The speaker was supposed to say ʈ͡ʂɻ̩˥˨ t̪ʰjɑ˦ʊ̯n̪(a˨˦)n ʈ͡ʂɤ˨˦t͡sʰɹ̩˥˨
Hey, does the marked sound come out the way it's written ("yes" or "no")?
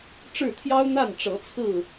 no